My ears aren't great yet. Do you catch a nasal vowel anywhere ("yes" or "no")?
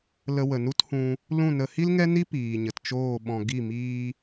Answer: yes